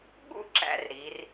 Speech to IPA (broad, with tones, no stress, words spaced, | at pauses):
ɠṵ˥ǁæ̰˧r ɾi˩˧r